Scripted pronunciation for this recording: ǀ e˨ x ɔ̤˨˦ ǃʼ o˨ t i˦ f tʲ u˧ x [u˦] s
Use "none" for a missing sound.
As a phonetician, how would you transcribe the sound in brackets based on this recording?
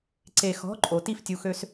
ø˦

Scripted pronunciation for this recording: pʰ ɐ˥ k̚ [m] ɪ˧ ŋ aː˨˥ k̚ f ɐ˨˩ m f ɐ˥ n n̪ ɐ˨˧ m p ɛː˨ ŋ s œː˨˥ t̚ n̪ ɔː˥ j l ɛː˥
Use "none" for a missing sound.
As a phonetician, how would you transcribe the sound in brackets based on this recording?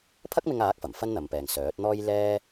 m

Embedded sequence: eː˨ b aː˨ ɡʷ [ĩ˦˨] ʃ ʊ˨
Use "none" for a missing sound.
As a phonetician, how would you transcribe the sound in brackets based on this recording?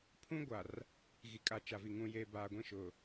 ĩ˦˨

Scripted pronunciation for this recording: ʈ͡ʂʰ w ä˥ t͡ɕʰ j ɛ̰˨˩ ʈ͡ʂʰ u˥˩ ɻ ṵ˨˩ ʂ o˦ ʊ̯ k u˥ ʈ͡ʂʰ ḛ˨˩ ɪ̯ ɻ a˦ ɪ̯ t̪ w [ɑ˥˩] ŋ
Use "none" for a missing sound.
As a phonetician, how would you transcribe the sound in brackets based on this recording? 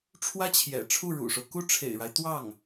ɑ˥˩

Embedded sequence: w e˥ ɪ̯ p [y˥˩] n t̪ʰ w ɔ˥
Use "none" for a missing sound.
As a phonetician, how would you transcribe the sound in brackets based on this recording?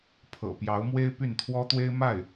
y˥˩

